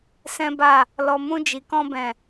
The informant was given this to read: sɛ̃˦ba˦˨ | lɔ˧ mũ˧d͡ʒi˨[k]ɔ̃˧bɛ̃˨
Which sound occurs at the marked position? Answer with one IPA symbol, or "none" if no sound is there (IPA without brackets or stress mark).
k